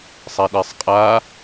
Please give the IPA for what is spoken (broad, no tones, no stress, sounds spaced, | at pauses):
sˤ ɛ ɗ e sˤ qʼ a